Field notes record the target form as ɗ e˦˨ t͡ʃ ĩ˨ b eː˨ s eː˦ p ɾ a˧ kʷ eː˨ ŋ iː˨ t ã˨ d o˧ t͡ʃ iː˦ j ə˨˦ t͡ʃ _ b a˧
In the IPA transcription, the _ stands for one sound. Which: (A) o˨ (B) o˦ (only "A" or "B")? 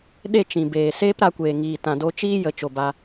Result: A